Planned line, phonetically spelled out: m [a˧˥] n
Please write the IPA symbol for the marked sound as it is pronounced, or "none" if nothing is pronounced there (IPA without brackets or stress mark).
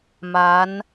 a˧˥